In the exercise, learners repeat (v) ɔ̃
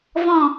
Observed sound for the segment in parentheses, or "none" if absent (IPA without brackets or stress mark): v